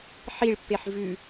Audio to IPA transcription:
ħiɭpːeħ vʉ

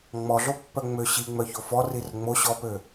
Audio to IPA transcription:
ŋ͡mɔɮopːœ ŋ͡møɕi ŋ͡mœçofɔ rirəŋ͡mo ɕɔpø

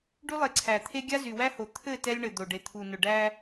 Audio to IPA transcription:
ɖy˦lˠe˨˦ǀʰæ˨t̪ʰe˦ ɡʲa˦zy˨wæ˦ho˨ t̪ʰɘ˦˨ tɛ˦lʲɳɘ˨d̪o˨ɖe˨ t̪ʰu˨nʊ˨ ɖæ˦

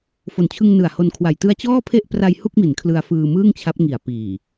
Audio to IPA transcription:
fo˩˦nt͡ɕʰɯ˧ŋ nɯ˨˩a̯ho˧nkʰwa˨˩j tɯ˦˥a̯t͡ɕɔː˥˩pʰe˥˩ʔpra˧j hu˥˩k̚mi˩˦n kʰlɯ˧a̯fɯː˧mɯː˥˩ŋt͡ɕʰa˦˥p̚ ŋi˨˩a̯piː˨˩

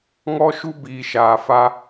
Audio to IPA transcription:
ŋɔ˦ʃu˦ biː˧ʃaː˧fa˦

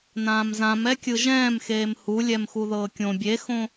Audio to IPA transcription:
nãːmzãmɛ kʲɯʒɛ̃ːmxeːm hulʲɛm xuðɤːkʲõ bʲexõ

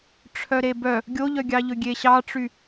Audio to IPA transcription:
ʈ͡ʂʰœɾebœ | ɡʲoʎœɡʲɑʎɵ ɡʲeɕɑʈ͡ʂy

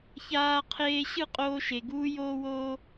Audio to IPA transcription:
çaː˧qʰeː˧ ɕɯ˦˨qʼoː˧ʃe˨ ɡuː˧joː˧woː˧

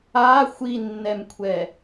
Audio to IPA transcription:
a xʷinːɛmkʷʰɛ

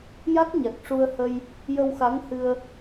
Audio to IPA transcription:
ja˦˥k̚ɲa˨˩k̚ʂu˧ə̯hə˧j | jə˧wxa˧˥ŋhɨ˧ə̯

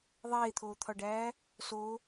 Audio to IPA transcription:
ðˤeːt̪ʰoːt̪ʰɒɖæː | so

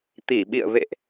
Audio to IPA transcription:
t̪i˧˩ɓḭ˧˨ə̯vḛ˧˨ʔ

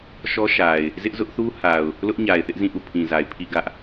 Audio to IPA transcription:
ʃɔ˦ʃa˨ɪ̯ | zɪ˦ʔzʊ˦ʔθu˦ha˨ʊ̯ | lʊ˦ʔɲa˨ɪ̯θɪ˦ʔ zĩ˦˨ʔu˦˨ pʰĩ˨ za˨ɪ̯pʰi˦˨ ɡä˦ʔ

